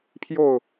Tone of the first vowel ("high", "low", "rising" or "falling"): falling